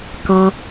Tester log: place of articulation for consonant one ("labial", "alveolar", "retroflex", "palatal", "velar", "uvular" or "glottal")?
velar